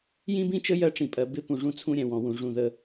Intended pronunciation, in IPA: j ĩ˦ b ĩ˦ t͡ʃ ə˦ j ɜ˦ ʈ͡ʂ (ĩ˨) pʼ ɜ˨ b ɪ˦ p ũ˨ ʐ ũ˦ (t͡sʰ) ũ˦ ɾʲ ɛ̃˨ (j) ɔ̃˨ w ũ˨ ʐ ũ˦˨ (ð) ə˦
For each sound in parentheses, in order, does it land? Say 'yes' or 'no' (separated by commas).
yes, yes, no, yes